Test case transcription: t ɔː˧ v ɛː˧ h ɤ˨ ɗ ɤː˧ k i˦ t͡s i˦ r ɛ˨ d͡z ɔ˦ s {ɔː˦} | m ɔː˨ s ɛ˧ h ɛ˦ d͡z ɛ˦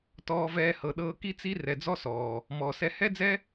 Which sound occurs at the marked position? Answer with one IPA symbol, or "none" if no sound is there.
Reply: ɔː˨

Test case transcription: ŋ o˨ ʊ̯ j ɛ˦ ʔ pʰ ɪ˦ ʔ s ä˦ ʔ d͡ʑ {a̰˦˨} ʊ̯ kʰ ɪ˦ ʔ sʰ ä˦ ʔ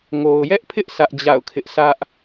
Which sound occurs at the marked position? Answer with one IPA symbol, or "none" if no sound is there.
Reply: a̰˦˨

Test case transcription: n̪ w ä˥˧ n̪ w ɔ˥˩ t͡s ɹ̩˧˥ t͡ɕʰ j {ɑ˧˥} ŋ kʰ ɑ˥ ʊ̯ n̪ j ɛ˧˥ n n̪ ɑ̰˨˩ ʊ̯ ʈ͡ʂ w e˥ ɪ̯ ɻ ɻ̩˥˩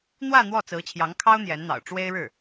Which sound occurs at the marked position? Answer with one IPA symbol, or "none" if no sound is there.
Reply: ɑ˧˥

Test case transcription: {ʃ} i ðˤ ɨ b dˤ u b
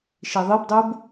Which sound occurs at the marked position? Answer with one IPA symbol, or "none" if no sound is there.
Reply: ʃ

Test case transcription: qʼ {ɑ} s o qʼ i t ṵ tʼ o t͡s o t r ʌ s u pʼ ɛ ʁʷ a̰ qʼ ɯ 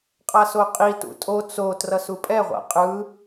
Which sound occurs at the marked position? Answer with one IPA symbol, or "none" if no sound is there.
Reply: a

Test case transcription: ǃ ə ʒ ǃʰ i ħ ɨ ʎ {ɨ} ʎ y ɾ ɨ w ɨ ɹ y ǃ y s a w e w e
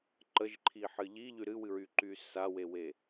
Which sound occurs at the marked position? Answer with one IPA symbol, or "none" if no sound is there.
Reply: i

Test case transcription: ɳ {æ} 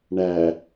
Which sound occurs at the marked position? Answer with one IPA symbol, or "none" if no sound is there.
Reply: æ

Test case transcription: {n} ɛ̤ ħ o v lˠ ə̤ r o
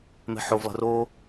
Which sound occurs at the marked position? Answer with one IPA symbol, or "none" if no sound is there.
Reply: m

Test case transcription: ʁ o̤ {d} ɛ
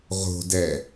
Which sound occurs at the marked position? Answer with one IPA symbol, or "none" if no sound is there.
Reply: d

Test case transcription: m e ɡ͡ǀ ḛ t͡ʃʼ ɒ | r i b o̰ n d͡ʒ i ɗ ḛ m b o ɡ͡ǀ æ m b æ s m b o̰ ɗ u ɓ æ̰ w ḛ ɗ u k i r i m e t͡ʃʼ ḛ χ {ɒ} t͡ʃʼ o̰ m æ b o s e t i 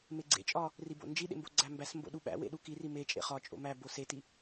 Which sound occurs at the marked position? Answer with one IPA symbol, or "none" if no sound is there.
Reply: ɒ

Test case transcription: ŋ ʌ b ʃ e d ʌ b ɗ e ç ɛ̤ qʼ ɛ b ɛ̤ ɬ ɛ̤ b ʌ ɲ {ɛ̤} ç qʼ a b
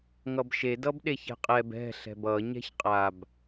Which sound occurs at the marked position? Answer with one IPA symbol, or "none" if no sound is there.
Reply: ɛ̤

